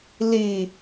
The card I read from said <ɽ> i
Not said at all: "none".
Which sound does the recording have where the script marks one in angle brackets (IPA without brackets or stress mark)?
l